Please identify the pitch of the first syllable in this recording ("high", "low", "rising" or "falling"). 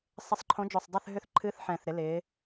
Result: rising